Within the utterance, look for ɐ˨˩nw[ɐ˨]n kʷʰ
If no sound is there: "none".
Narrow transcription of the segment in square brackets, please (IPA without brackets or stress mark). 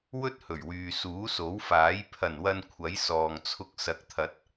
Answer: ɐ˨